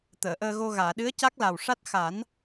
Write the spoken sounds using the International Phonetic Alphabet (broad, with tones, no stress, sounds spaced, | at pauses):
t̪ əː˨˩˨ ʔ əː˧ ɣ o˧ ɣ aː˨˩˨ ɗ ɨ˧˥ ə̯ c a˦˥ k̚ l a˨˩ w ʂ a˦˥ t̚ x a˨˩˦ n